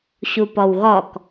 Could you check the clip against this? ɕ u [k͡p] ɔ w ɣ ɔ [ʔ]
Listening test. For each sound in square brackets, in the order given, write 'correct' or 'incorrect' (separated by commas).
incorrect, incorrect